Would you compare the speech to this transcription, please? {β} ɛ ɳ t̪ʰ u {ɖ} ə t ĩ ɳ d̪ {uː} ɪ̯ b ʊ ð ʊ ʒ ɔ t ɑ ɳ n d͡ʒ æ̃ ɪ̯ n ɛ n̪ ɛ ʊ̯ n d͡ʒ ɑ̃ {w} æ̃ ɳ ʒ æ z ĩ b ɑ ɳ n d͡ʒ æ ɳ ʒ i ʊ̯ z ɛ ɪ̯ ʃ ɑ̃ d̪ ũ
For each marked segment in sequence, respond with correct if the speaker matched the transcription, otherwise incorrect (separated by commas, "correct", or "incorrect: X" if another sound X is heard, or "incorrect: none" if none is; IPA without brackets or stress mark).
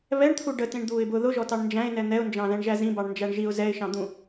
correct, correct, correct, incorrect: ð